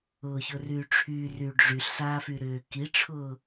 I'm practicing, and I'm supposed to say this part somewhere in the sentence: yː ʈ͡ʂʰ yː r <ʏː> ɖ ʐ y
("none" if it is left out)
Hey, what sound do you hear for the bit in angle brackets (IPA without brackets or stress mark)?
yː